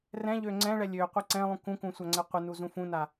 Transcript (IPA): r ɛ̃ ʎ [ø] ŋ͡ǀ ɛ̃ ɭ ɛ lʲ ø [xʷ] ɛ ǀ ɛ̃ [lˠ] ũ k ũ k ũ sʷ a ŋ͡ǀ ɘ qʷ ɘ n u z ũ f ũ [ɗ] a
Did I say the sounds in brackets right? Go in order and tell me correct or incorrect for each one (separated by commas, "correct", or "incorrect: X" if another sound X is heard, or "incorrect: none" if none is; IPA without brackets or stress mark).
correct, incorrect: qʷ, correct, incorrect: n